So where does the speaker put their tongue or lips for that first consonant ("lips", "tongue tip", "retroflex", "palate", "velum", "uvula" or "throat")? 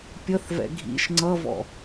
lips